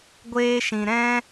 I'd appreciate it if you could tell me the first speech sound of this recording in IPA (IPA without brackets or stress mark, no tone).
ɡʷ